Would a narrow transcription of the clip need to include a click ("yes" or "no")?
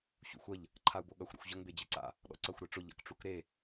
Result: yes